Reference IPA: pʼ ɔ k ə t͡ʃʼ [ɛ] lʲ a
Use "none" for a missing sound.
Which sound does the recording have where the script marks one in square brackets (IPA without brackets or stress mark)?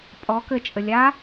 ə